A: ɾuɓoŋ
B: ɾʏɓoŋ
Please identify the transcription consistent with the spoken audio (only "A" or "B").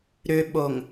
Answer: B